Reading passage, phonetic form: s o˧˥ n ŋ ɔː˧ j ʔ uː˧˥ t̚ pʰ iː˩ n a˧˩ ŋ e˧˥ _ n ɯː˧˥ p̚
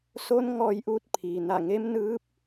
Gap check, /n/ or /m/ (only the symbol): m